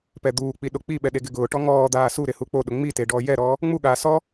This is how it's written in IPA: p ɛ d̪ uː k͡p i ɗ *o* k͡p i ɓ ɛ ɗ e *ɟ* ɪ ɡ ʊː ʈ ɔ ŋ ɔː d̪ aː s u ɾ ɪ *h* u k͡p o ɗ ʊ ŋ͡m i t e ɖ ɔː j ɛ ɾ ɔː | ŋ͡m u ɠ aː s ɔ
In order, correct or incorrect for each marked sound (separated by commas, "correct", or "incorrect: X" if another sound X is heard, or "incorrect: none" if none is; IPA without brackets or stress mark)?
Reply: correct, incorrect: ɡ, correct